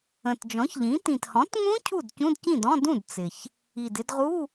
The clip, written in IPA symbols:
ə̃˨˩ t d͡ʒ ɔ̃˩˥ ç ʎ ĩ˩˥ t ĩ˨˩ t h ɔ̃˩˥ t ŋ ũ˦˥ cʰ u˥˩ d c ũ˧˥˧ d c ĩ˥˩ d ɔ̃˧˥˧ d ũ˥˩ d t͡s ɪ˨˩ ç | i˨˩ d ɪ˥˧ d ʁ u˧˥˧

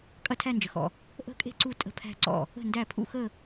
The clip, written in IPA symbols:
kʼ ɐ˥˧ tʰ æ˥˧ n d͡ʒ ə˨ x ɔ̰˨ | ʔ ə̤˥˧ kʼ e̤˥˧ ǀ u˥˩ tʼ ə̤˥˩ pʰ æ̤˥˧ ǀ ɔ̰˥˩ | ə̤˥˩ n d æ˥˩ pʰ ṵ˥˧ x ə˥˧

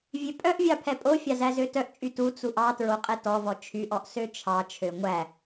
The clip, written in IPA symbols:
vʲ ø pʼ œ ʔ vʲ ɑ pʰ ɛ pʼ o fʲ ɑ z æ z ø t œ ʔ t͡ʃʼ y t u t͡s u ʔ ɑ t ɹ o qʼ ɛ t ɔ v ɔ t͡ʃʰ y ʔ ɔ ʔ s ø t͡ʃʰ ɑ t͡ʃʰ ø ŋʷ æ

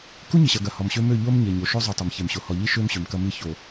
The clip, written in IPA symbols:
k u˦ ɲ ɪ˨ ɕ ɐ˨ ɡ ɐ˨ h ɔ˨ m ɕ ø˦ m ø˦˨ ʎ o˦ m ɲ e˨ ɲ o˨ ʃ o˦ zˤ u˨ tˤ ɐ˨ m ç e˨ m ɕ o˨ h ɔ˨ ʎ i˦ ʃ ø˦ m ɕ ø˨ m k ɐ˦ m i˦ ç o˨

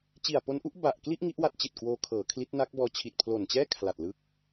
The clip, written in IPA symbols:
t͡ɕ i˨˩ a̯ p o˦˥ n ʔ u˦˥ ʔ b a˨˩ ʔ k l i˥˩ ʔ ŋ i˦˥ ʔ w a˦˥ t̚ t͡ɕ i˨˩ t̚ k w oː˧ kʰ ɤː˩˦ kʰ l i˦˥ t̚ n a˦˥ k̚ b ɔː˧ t͡ɕʰ i˨˩ t̚ pʰ l o˨˩ n t͡ɕ ɛː˥˩ kʰ l a˨˩ t̚ l ɯ˦˥ k̚

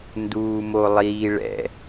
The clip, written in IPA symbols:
n d uː m o lˠ iː ɭ ɛ̰

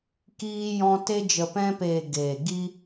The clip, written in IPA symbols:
k iː˧ j ɔ̃˧ t e˧ d͡ʒ ə˨ p ɛ̃˧ p eː˨ ɡ eː˨ ɡ i˦

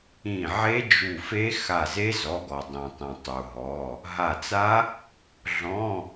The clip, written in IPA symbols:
ĩ˧˩ ʕ e˦˥ d͡ʒ u˧˩ f e˦˥ x a˧˩ z e˦˥ z ɔ˩˧˩ ɡ ɔ˩ dˤ ĩ˩ tˤ ĩ˩ tˤ u˩ ɦ ɔ˩˧˩ | ɦ a˧˩ t͡s a˦˥ | ɮ ɔ̃˧˥˧

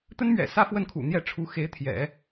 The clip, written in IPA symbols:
t̪ ə˥ n m ɥ ɛ̰˨˩ s ä˥˧ f w ə˥˩ n kʰ ṵ˨˩ n̪ j ɛ˥˩ ʈ͡ʂʰ u˧˥ x e˧˥ ɪ̯ t̪ʰ j ɛ̰˨˩˦

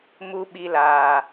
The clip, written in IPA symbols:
m u˧ ɓ i˧ l aː˨

